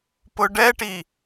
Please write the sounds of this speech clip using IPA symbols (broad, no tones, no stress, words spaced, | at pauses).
pʊɖɛʈi